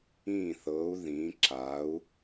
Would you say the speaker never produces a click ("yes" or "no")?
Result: no